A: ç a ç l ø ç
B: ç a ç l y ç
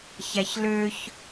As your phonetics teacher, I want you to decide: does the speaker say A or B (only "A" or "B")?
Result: A